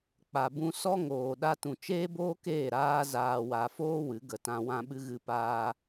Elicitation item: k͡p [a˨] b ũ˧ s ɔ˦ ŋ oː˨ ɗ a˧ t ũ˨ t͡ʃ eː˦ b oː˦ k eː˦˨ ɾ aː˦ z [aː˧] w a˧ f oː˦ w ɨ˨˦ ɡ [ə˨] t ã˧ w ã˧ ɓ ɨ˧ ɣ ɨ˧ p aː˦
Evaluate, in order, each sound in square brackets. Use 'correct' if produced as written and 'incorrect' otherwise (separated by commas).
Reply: correct, correct, correct